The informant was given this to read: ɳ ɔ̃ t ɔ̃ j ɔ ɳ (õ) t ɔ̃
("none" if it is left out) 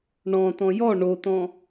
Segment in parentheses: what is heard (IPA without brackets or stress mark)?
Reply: o